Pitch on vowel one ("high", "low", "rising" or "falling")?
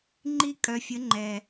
high